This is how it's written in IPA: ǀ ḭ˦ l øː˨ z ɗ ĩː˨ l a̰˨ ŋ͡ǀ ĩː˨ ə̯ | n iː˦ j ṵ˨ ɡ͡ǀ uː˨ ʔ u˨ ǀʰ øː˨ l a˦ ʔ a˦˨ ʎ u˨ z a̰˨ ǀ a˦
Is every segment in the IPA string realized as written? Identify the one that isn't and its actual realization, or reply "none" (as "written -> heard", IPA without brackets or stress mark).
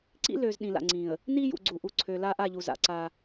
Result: none